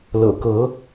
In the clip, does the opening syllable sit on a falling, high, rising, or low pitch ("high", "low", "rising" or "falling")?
low